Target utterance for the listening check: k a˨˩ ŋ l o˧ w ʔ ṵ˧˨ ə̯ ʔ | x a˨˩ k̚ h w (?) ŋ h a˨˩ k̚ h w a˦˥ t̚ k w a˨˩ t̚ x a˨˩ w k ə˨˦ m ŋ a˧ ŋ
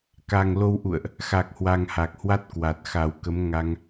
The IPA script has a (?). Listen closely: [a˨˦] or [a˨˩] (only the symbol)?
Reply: a˨˩